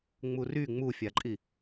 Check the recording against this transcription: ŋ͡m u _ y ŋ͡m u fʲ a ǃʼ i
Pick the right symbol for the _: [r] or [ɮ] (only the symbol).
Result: r